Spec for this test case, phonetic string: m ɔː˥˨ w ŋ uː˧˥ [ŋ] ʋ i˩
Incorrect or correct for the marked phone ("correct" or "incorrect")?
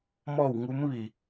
incorrect